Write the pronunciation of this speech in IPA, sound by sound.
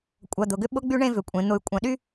kʷʼ ɐ˩ d̪ ʊ˩ ɡ ʏ˦ ɓ ʊ˥ ɡ͡b y˥ ɳ ẽ˦ v ʏ˩ kʷʼ ẽ˩ n̪ ʊ˨ y̯ kʷʼ ɐ̃˨ ɗ y˥

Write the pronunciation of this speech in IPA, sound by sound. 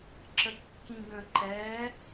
ǁ ə kː ĩ ɡ ə̃ ǃ ɛ

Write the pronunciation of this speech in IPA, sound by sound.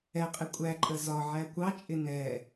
ɛ qʼ ɪ kʷʼ æ ǃʼ ə z ɒ ʕ æ kʷ ɑ t͡ʃʼ ɪ n ɛ

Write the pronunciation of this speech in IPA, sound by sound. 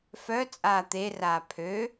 f œ t͡sʼ aː t̪ e r aː pʰ ø

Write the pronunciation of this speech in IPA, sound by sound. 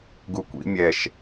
ɡ u kʷ ḭ mʲ ɛ ʃ

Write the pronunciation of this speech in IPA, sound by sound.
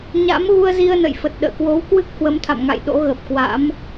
ɲ a̰˧˥ m ɣ u˧ ə̯ z i˧ ə̯ n ə̰˧˨ j f ə˨˩ t̚ ɗ ə̰ː˧˨ k w o˨˦ w k w ɨ˦˥ k̚ h w ə˨˦ m t̪ʰ a̰˧˨ m ŋ a̰˧˨ j ɗ o̰˧˥ ɣ ə˨˩ p̚ k w a̰˧˥ m

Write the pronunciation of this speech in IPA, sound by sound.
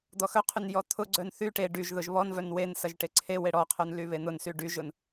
d̪ ɔ x œ qʰ y n j ɔ t̪ʰ ʊ ɡ͡ǀ œ n θ y ʈ e ɖ y ʒ ð ʊ ʒ β ɔ n v œ n w e n s ɐ ʒ ʈ e ǀʰ e w e ɽ ɔ qʰ œ n l y β e n̪ ʊ n s y ɖ y ʒ ʊ n

